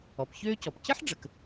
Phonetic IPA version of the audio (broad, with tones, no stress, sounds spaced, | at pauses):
ɔ˩ p ç øː˥ c ɔ˩ p c ɘ˥ ħ ɖ͡ʐ ə˩ k